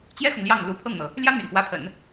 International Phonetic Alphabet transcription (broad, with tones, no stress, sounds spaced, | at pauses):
t͡ɕ j ɛ˥ x ʊ˨ ŋ l j ɑ˥˩ ŋ l u˧˥ pʰ ɤ˥˩ ŋ n̪ ɤ˩ | l j ä˥ n̪ y̰˨˩ n p w ä˧˥ pʰ ə̰˨˩˦ n